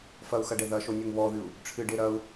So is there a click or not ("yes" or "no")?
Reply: no